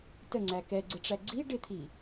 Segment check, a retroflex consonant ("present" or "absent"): present